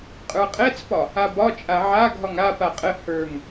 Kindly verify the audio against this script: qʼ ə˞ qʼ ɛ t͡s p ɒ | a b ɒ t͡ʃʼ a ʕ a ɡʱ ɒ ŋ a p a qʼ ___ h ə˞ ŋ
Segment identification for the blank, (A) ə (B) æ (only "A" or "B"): A